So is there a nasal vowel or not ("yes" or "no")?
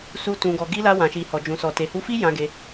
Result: yes